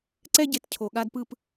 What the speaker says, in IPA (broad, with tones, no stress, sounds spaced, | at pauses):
ǀ ɛ˥ ɟ e˧ t cʰ o˧ ɠ a˥ d p ɯ˥˧ p